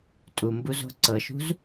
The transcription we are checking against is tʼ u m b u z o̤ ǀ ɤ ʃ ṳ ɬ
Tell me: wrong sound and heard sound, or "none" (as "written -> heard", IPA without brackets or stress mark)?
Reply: ɬ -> z